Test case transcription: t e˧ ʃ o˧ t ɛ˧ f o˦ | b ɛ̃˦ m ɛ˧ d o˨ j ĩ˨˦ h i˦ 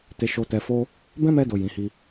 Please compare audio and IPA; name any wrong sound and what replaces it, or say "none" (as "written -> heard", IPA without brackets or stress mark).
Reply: none